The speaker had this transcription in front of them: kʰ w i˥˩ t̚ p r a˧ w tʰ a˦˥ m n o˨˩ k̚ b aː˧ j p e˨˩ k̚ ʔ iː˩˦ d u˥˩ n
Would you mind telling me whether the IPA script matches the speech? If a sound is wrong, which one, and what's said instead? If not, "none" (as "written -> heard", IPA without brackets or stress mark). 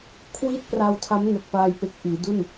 b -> p